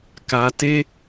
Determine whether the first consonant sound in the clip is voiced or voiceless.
voiceless